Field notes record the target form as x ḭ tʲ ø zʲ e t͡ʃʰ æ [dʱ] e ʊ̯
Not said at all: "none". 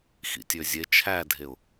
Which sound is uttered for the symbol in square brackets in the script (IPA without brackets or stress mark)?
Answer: dʱ